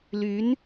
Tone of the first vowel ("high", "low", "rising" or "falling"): rising